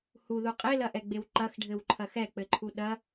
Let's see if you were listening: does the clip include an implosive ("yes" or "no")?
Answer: yes